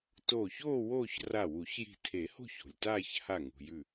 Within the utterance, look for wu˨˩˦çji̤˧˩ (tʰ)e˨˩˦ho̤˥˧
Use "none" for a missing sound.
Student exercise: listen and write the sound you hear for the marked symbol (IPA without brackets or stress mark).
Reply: tʰ